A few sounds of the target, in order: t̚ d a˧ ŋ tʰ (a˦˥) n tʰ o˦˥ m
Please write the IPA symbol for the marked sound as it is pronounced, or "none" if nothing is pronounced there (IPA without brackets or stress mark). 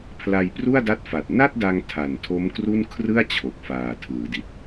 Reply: a˨˩